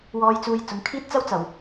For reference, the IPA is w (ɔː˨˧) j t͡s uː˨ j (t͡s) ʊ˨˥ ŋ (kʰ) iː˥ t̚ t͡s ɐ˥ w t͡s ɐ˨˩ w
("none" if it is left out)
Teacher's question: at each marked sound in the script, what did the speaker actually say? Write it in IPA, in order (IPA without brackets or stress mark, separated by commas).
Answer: ɔː˨˧, t͡s, kʰ